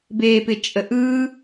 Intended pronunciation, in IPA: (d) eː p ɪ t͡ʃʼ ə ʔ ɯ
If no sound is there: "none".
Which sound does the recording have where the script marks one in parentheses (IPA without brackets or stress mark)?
b